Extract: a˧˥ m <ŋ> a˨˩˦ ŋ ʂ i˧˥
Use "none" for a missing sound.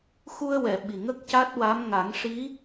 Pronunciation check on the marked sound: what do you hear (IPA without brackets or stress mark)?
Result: ŋ